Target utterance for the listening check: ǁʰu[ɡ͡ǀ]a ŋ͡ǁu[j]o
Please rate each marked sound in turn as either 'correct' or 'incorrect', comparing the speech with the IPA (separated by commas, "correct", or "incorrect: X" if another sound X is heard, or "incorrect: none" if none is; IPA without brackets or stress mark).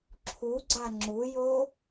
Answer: correct, correct